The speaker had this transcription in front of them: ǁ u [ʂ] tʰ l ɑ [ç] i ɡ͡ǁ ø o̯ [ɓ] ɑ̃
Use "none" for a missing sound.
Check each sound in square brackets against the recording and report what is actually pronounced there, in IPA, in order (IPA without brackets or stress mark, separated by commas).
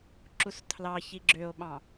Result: s, ç, ɓ